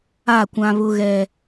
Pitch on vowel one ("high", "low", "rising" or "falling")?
falling